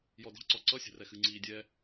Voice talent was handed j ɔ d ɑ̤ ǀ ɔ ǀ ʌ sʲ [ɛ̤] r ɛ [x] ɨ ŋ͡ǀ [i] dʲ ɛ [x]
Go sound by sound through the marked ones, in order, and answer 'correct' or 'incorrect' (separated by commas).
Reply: correct, correct, incorrect, incorrect